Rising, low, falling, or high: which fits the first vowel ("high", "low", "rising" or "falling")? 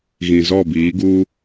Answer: low